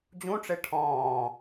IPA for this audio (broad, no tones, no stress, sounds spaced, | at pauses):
d͡ʑ ũ ʈ͡ʂ e ʈʰ ɔ̃ː